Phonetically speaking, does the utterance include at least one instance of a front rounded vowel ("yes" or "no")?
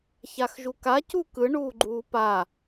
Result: no